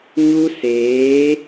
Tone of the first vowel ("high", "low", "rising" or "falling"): high